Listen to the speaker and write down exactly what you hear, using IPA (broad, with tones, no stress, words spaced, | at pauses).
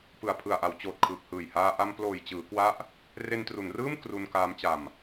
pɯ˨˩a̯pʰɯ˨˩a̯ʔa˩˦w t͡ɕoː˨˩t̚kʰɯː˨˩k̚hɯː˨˩jhaː˧ ʔa˧mploː˨˩jt͡ɕɯː˩˦kwa˦˥ʔ | re˧ntru˩˦nrɯː˥˩m kru˧nkaː˦˥mt͡ɕa˧m